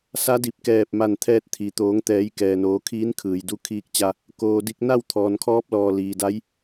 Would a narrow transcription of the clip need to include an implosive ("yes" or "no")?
no